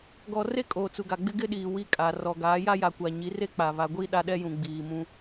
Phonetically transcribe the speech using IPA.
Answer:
ɡɔ˨ re˦kʼoː˨ t͡su˨ɡa˨ɡ͡bɪ˦ ɡɪ˦ɗiː˨ wi˦kʼa˨ rɔ˨ ɡaː˨˦ja˦ja˨kʷa˨ ɲi˨˦ re˦k͡pa˨ βa˨ɡʷiː˦ ɗa˦ɗɛ˦jũ˨ ɡ͡biː˨mũ˦

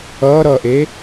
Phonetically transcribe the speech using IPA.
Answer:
ʌːɾʌːʔe

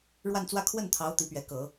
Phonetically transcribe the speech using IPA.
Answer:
ɻwa˥˧nt͡swä˥˧ kʰwə˥˩nt̪ʰɑ˧˥ʊ̯ t̪i˧˥pɥɛ˧˥ kɤ˨˩˦

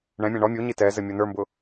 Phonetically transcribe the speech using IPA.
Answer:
ɳɛ̃mʲæ̃ ɳɔ mʲuɲi tɛ zɘmʲonə˞mbʊ

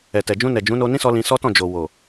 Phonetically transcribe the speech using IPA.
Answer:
ɛ˨tɛ˨d͡ʒũ˧nɛ˨ d͡ʒũ˨˦no˧nĩ˦sɔ˧ lĩ˧sɔ˦ tɔ̃˦˨d͡ʒo˨wo˨

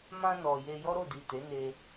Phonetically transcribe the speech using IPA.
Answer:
mã˧ nɔ˨je˧ jɔ˦ɾo˦˨di˨ te˨˦ne˧

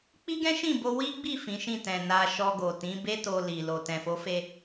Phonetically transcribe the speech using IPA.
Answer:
k͡pi˦ɡɛ̃˦ ʃĩ˦˨bo˧ wi˦ɡ͡bi˦˨ fĩ˨˦ʃĩ˦˨tɛ̃˨ na˧ ʃɔ˧ɡo˨ tĩ˨˦be˦to˧ li˨ lo˨ tɛ̃˨fo˨˦fe˧

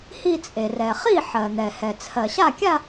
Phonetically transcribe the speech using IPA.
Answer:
hi˥˧t͡sʼe˩rɛ˩ χi˥˩ ħɜ˩ n̪ɛ˩hɛ˩ t͡sʰɜ˩ɕa˥˩kʲa˥˧

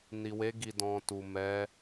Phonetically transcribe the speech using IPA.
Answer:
ni˨we˨˦ ɡi˧dɔ̃˧tu˨ mɛ˨˦

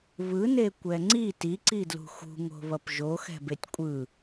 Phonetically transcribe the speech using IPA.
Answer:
βɯne kʷɛŋ͡ǀi tiǀidlṳ xṳŋo̤ βʌpʒoxɛ̤betʲ kʷʼɯ

